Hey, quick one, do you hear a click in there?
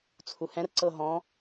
yes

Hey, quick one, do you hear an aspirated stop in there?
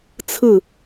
yes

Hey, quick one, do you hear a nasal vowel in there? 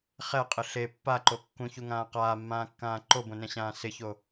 yes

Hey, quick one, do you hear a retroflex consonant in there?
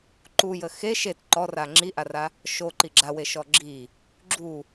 no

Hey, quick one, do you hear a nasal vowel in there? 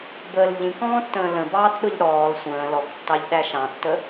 yes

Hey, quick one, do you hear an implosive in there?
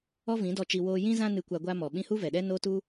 yes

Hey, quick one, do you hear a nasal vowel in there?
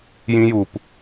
yes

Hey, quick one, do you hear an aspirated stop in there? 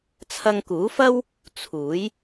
yes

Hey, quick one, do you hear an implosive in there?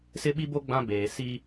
yes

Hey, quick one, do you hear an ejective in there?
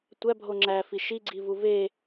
no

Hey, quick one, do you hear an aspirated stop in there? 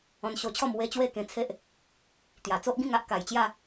yes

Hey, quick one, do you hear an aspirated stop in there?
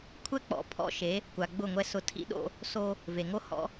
yes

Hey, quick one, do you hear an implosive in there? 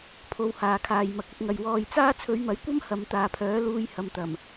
no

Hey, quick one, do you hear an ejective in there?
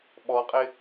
yes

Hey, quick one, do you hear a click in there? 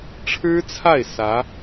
no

